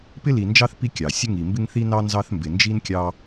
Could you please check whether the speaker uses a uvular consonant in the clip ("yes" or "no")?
no